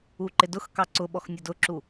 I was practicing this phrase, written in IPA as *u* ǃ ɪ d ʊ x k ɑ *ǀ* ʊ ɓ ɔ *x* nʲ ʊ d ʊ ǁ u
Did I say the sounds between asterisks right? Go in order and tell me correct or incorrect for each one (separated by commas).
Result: correct, correct, correct